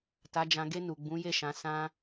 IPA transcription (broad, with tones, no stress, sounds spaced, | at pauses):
t a˨ d͡ʒ ã˨ ɡ e˧ n u˨ ɡ͡b ũ˨˦ j e˦˨ ʃ ã˨˦ s ã˧